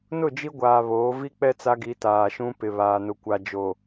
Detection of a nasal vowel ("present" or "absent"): present